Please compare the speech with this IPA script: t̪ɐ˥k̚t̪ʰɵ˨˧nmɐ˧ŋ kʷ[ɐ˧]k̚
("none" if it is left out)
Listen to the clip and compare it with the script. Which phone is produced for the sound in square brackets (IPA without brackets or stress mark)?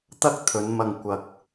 ɐ˧